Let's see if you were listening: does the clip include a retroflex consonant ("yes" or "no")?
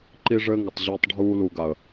yes